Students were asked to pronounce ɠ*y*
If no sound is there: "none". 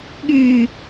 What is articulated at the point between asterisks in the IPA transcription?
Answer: y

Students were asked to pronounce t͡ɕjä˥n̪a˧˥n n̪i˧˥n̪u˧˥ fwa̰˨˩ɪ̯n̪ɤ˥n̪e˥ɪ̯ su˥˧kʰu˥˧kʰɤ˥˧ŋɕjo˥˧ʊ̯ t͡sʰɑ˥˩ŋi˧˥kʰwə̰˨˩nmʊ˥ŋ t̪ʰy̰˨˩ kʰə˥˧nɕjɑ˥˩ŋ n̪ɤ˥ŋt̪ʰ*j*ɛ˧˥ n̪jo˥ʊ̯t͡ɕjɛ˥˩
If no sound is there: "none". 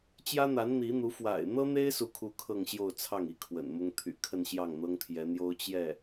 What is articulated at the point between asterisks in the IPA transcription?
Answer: j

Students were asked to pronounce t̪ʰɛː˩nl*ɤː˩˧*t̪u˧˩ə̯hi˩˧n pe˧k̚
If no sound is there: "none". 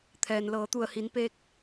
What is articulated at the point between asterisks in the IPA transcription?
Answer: ɤː˩˧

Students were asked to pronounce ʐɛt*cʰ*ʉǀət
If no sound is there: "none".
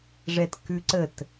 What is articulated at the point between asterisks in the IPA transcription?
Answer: k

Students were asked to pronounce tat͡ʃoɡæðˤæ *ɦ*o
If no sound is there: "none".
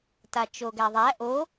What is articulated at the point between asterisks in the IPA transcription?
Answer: ʔ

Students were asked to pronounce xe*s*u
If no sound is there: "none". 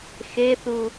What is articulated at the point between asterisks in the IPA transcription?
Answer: θ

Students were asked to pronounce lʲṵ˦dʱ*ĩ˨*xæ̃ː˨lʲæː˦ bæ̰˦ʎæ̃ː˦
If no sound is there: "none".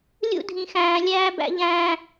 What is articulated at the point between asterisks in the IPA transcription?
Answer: ĩ˨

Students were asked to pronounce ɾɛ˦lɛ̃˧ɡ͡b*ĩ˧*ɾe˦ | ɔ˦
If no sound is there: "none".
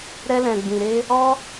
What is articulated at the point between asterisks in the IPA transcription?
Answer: ĩ˧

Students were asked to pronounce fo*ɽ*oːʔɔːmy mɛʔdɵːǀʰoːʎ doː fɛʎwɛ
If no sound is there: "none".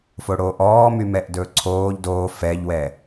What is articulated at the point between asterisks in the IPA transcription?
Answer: ɽ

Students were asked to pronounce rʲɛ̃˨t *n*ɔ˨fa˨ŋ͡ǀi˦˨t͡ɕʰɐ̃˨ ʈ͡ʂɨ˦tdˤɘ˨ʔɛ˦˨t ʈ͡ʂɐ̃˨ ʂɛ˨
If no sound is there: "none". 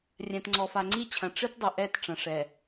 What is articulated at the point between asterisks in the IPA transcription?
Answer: ŋ͡ǀ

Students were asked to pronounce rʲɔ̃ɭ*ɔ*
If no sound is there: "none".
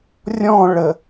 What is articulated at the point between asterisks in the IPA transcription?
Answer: ə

